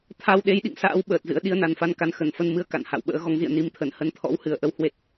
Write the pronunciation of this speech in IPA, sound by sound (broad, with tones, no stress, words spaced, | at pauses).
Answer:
t̪ʰa˧w ɗe˨˦jɗḭ˧˨ŋsa̰ː˧˥w ɓəː˨˩t̚zɨ̰˧˥ə̯ ɗi˧ə̯na˨˩nfa˧nka˨˦n xə˧˩nfə˧nmɨ˧ə̯ ka̰˧˨nha̰˧˨w ɓə̰ː˧˥ɣɔ˨˦ŋzḭ˧˨ə̯ ni˨˦mt̪ʰə˧˩n hə˨˦nt̪ʰɔ̰˧˥whɨ˨˩ə̯ʔə˨˦w hwe˦˥t̚